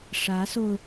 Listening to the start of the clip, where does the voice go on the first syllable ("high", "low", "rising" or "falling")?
rising